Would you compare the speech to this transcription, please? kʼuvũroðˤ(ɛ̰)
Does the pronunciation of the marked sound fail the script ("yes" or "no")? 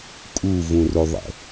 no